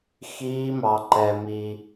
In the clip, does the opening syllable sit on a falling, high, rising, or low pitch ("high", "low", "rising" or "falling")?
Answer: high